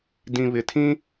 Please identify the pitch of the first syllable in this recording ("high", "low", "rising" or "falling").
low